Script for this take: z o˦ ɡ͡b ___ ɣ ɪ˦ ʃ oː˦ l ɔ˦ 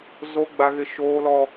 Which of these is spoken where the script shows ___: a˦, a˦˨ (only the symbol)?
a˦